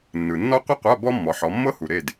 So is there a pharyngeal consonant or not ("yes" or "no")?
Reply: yes